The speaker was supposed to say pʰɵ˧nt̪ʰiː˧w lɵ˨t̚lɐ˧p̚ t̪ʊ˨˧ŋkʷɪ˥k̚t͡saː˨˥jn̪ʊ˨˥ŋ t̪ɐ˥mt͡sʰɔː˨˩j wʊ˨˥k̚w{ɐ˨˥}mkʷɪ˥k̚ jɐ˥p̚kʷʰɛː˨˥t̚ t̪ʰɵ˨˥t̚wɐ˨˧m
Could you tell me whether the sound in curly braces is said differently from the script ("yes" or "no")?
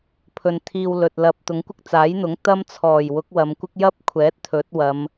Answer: yes